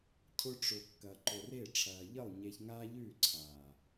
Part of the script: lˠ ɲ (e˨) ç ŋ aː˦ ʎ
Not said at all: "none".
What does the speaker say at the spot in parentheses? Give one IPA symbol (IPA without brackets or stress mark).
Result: e˧